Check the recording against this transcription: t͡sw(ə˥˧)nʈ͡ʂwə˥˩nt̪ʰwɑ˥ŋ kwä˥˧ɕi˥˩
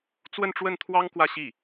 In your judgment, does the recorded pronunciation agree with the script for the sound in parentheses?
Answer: yes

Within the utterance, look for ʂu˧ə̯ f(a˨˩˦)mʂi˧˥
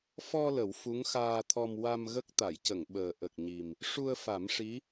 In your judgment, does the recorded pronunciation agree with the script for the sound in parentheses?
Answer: yes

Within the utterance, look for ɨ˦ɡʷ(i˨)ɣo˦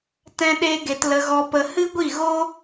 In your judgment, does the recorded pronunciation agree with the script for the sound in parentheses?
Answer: no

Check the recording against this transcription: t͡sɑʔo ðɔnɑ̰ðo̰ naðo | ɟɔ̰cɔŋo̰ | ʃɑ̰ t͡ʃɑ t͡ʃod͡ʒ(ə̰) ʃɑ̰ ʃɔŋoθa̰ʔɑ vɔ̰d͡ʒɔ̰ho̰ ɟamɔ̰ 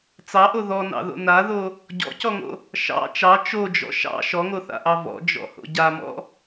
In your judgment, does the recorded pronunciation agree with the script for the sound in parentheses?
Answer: no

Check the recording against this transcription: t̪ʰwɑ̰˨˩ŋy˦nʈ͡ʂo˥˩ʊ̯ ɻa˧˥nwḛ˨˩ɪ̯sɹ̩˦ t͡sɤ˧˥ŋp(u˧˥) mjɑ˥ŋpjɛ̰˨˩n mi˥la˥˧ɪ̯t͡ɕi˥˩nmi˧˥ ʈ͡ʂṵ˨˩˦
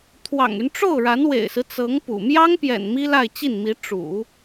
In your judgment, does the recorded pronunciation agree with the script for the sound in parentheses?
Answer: no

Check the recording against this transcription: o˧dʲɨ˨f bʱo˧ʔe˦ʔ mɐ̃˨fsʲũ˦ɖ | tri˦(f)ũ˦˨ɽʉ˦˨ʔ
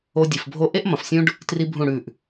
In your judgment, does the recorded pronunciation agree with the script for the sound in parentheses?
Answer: no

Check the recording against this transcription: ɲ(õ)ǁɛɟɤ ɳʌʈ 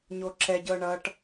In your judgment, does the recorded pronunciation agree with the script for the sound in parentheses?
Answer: no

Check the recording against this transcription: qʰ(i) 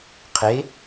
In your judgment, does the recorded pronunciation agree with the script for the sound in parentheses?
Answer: no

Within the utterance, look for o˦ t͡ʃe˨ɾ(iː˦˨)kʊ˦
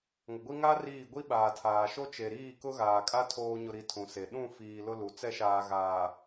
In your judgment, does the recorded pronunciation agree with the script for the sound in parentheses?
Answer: yes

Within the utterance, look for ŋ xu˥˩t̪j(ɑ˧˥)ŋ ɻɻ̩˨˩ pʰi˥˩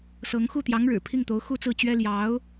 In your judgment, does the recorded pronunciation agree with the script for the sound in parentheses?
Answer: yes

